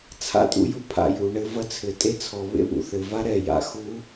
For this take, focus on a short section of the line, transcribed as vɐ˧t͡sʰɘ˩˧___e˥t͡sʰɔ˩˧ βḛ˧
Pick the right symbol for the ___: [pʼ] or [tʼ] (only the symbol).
tʼ